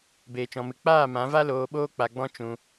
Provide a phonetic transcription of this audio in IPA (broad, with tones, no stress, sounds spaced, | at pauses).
b eː˧ t͡ʃ ɔ̃˧ m ɨ˧ k͡p aː˦˨ m ã˨˦ v a˦ l oː˧ ɓ oː˦ k͡p a˧ ɡ͡b ɔ̃˦ t͡ʃ ũ˧